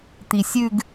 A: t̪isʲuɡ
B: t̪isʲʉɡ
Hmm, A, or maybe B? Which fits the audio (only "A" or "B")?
B